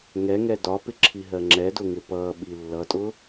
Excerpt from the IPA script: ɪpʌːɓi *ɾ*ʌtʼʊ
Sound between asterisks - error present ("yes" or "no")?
yes